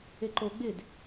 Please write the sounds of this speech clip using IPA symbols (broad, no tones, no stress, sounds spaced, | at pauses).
e ǃ o ɡ͡b ɪ d